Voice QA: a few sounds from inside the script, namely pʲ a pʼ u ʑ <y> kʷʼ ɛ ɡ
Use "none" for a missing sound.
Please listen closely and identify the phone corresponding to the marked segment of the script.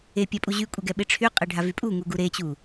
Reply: y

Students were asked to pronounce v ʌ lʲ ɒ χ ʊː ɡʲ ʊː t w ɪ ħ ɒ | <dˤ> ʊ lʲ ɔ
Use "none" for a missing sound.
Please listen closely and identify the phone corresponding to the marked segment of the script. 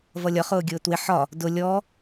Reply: d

